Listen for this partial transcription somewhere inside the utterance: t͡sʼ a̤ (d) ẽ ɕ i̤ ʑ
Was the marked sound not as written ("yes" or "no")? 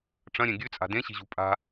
no